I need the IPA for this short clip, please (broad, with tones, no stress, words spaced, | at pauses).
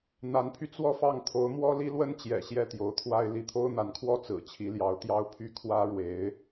n̪a˧˥npʰy˧ t͡swɔ˥˧fɑ˥˩ŋ t̪ʰo˧˥ʊ̯mwɔ˥ li˥lwə˥nt͡ɕjɛ̰˨˩ ɕjɛ˥˩t̪jo˧˥ʊ̯t̪ʰwa˥ɪ̯ li˧˥t̪ʰo˥ʊ̯n̪a˧˥nkʰwɔ˥˩ t͡sɹ̩˨˩ t͡ɕʰi˧˥ljɑ˧˥ʊ̯t̪jɑ˥ʊ̯pʰy˥ kʰwä˥ɻwe˧˥ɪ̯